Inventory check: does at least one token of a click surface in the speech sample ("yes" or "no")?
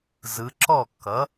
yes